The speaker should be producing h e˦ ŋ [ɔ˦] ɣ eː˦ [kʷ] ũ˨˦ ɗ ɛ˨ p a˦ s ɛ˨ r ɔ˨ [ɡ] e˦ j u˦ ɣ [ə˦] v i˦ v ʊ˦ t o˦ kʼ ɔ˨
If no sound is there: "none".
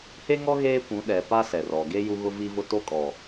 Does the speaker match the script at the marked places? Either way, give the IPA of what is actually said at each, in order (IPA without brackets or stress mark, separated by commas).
ɔ˦, kʷ, ɡ, ʊ˦